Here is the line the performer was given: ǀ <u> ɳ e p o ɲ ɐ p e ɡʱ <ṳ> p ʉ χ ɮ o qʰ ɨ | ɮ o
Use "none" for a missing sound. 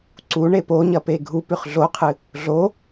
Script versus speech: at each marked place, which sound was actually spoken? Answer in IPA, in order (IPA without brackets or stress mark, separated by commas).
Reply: u, u